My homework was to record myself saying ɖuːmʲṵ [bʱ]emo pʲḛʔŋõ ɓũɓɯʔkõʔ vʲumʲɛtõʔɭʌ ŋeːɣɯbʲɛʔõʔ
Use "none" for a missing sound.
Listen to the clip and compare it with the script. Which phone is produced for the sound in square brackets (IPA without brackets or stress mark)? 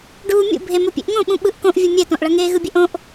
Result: bʱ